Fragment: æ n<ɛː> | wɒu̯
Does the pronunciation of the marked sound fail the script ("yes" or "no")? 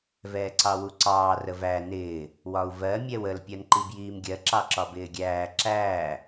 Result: yes